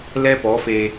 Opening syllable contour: high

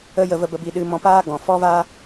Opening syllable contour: high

